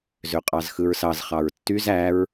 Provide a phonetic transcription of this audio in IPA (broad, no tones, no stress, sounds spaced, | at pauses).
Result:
z ø qʼ ɑ z x ɯ ɹ s ɑ z χ ɑ ɹ tː y z æ ɹ